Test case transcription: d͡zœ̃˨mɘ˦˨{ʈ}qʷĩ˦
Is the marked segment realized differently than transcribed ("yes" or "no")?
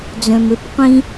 yes